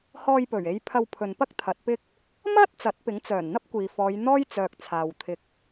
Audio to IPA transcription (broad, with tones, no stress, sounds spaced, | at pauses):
h ɔː˧ j p ɵ˨˩ ɥ e˨˧ j pʰ ɐ˧ w pʰ ɵ˨ n p ɐ˥ k̚ t̪ʰ ɐ˨˥ t̚ p ɪ˥ k̚ | m ɐ˥ t̚ t͡s ɐ˨˥ t̚ p ɪ˨˥ ŋ t͡s œː˨˩ n n̪ ɐ˥ p̚ kʷ iː˨ f ɔː˨˧ j n̪ ɔː˥ j t͡s œː˨ k̚ t͡sʰ aː˨ w t̪ʰ ɪ˨ k̚